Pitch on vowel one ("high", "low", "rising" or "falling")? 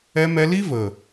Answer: high